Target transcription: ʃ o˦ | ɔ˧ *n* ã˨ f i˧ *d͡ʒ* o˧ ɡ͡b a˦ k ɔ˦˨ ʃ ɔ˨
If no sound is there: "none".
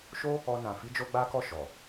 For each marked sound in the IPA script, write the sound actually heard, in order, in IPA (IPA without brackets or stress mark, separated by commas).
n, d͡ʒ